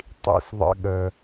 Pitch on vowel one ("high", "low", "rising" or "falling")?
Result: high